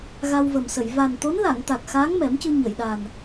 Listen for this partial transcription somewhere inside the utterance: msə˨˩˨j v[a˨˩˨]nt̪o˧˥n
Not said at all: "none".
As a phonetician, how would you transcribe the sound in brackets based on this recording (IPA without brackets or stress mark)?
a˨˩